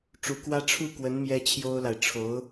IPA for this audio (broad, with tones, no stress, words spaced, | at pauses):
ʈ͡ʂu˧˥kwä˥ ʈ͡ʂʰu˥˩kwə˧˥n mjɛ˥t͡ɕʰjo˥ʊ̯la˨ɪ̯ ʈ͡ʂʰo˧˥ʊ̯